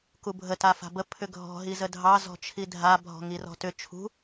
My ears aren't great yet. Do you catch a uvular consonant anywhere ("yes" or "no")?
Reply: no